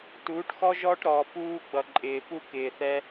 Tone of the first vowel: rising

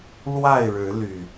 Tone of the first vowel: falling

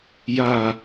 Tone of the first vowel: low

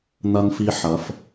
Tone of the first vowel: high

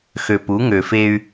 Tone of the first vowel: low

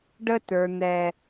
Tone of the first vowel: high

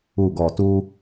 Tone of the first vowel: low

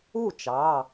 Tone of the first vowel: falling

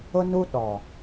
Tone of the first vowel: high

